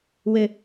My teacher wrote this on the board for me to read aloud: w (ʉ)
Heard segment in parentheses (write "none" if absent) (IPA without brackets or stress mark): ɘ